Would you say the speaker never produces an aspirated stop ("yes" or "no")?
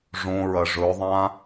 yes